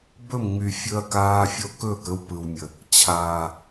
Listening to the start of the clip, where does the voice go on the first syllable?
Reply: falling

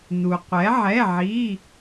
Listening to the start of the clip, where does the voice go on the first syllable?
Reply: low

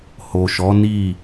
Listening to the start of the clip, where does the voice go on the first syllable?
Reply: low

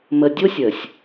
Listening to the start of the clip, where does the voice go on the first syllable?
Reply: low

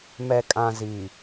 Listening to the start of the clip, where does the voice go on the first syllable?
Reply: low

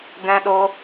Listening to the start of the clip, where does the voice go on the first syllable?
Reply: high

